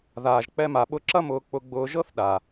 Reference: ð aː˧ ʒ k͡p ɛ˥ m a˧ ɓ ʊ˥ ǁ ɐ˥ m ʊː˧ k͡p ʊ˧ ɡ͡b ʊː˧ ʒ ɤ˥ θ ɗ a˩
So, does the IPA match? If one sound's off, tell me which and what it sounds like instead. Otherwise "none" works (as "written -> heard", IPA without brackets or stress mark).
none